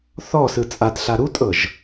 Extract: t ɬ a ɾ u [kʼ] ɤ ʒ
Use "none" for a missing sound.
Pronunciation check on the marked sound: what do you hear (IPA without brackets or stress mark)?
tʼ